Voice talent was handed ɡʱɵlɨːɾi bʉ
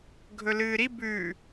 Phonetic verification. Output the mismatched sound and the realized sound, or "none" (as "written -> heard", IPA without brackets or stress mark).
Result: none